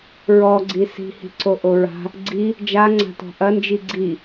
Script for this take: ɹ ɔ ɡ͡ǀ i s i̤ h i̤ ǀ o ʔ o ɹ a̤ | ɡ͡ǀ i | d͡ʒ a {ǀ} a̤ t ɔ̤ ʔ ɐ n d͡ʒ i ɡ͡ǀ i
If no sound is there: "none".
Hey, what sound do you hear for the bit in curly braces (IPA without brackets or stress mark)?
ŋ͡ǀ